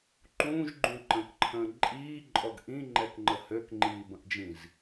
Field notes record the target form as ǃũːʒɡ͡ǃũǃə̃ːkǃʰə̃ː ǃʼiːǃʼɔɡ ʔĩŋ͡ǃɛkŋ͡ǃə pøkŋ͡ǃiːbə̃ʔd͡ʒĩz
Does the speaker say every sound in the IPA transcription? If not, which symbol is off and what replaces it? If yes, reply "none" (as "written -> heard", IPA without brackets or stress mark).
p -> h